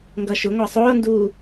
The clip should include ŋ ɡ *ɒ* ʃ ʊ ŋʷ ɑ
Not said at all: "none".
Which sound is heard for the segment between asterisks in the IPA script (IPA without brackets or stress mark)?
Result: ʌ